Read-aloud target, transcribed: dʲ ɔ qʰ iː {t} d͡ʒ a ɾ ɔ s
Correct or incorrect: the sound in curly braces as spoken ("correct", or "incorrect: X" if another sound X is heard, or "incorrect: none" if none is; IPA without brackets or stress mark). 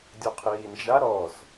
incorrect: n